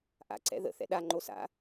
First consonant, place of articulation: glottal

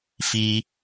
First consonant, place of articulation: labial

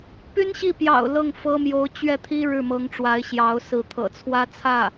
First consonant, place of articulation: labial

